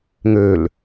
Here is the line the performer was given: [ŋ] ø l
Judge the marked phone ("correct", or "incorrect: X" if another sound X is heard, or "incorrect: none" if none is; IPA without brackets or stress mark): correct